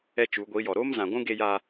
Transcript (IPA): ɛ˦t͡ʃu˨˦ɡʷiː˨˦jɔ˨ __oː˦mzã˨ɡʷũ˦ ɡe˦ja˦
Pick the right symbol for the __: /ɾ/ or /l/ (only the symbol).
ɾ